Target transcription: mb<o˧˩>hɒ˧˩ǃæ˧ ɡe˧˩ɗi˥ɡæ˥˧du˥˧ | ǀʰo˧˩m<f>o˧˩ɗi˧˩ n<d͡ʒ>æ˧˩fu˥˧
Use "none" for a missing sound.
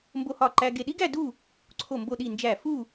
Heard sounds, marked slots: o˧, b, d͡ʒ

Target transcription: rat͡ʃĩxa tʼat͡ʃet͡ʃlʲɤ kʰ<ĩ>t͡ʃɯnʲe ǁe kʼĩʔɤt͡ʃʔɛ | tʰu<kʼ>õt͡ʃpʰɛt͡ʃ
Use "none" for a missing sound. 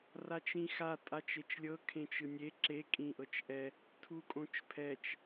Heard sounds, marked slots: ẽ, kʼ

